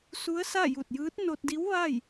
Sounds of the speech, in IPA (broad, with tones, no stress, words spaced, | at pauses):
su˧˥ə̯sa˥˨ ju˧˩t̚jɯː˧˥t̚ no˧t̚di˧˥w ʋaː˥˨j